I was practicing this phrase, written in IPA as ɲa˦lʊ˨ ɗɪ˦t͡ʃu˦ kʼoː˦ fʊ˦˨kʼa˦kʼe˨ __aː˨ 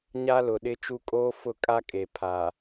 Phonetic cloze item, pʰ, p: pʰ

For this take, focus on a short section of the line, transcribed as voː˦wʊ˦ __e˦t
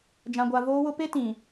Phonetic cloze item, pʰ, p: p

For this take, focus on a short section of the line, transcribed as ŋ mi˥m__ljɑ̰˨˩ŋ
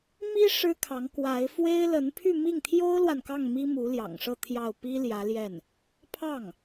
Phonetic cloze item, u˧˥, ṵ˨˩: u˧˥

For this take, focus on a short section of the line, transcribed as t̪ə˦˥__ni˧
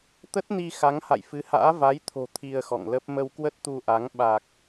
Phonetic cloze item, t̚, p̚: t̚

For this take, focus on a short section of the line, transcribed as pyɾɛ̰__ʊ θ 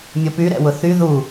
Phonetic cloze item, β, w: w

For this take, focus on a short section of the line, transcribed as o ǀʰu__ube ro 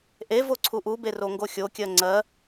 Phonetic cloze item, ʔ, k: ʔ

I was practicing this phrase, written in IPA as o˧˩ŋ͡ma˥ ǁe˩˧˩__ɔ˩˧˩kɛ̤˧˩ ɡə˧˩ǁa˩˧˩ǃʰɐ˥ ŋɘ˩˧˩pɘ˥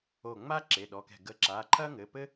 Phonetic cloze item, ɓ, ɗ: ɗ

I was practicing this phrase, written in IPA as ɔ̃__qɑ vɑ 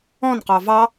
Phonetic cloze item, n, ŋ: n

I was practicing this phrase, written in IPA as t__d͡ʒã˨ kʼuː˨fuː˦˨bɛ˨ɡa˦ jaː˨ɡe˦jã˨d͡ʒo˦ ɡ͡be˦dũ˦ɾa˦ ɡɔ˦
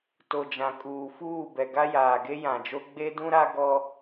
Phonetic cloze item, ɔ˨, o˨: o˨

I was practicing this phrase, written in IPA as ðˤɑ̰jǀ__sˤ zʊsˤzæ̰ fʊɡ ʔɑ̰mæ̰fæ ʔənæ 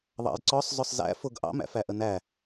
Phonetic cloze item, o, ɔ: ɔ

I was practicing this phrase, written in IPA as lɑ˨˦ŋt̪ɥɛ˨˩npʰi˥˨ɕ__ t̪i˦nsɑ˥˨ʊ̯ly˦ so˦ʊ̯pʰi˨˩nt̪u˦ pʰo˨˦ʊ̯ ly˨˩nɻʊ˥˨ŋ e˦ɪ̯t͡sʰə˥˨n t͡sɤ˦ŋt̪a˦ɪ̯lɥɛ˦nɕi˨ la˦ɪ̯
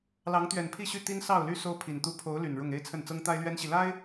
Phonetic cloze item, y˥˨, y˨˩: y˥˨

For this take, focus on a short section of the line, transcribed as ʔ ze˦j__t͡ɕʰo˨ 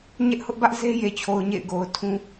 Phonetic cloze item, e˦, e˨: e˨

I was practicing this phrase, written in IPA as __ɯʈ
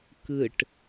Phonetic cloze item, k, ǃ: k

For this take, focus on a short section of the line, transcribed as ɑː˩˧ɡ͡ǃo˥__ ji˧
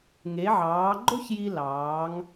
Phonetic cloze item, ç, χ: ç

